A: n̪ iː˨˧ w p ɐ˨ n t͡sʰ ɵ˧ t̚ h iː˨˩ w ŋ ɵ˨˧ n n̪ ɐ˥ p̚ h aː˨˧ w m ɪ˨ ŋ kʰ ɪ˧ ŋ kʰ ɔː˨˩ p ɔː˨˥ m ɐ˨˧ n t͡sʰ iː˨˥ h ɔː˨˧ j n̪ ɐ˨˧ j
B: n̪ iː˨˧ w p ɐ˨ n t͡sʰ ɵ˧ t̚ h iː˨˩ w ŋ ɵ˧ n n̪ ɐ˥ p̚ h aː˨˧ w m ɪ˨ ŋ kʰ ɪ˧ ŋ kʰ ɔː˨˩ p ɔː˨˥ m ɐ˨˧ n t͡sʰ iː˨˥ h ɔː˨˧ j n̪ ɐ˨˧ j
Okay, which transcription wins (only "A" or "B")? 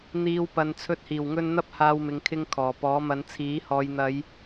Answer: B